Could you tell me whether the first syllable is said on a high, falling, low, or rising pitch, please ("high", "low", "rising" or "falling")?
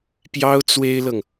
high